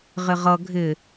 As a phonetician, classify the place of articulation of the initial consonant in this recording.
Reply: uvular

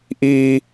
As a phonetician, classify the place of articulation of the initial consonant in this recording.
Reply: glottal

